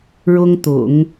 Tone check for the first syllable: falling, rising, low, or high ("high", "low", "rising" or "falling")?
high